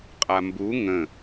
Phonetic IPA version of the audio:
qʼambu ŋə̃

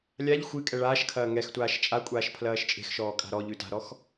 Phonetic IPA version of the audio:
lʲaʎ xʷɨkʼɛ ɭaːʃkʰɐː ŋɛxtʷaːʃ t͡ʃʼakʷʼaːʃ pʰlɐːʃt͡ʃʼe̤xʃɔː kʼa̤ɾɔʎʉ ta̤ɾɔx

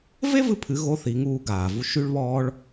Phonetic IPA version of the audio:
ve˥vɨ˧pʰɨ˩˧ ɣo˧˥θi˩˧ŋuː˧ ɡaː˩ vu˧ ʃy˧ɭβɔː˧ɭ

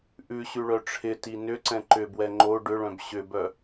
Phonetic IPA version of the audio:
ʔʉɕʉɭœ ʈ͡ʂʰɪti nʏǀɛ̃ ǃʏbwɛ ŋ͡ǃo ɖʏɭœ̃b ɕʏbœ

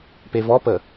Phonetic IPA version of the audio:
pevɔpə

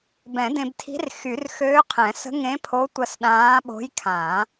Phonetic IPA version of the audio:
bɛ̃˨˩˦dẽ˧b tʰi̤˧˥rxy˨˩˦rxøː˧˥qʰɛ̃˨˩˦ sə̤˧˥ŋẽ˧˥pʰo˧˥tʷə˧s ɗãː˧˥ɓo̤˧˥jkʰã˨˩˦

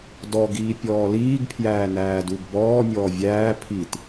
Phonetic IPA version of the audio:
dɔɡiː pʲɔːliːɡpʰjæː næːduɡbɔː mʲɔːvʲæː pʰit

